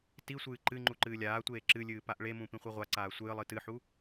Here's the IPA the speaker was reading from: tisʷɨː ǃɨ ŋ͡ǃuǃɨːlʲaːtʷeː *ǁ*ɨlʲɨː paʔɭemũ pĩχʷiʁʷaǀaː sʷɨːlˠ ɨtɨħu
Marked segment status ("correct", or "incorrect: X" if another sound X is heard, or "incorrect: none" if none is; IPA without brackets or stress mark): correct